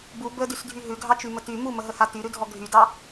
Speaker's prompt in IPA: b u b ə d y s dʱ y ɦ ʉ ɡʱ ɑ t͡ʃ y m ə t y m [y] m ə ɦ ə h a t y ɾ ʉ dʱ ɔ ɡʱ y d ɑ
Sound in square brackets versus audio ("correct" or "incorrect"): incorrect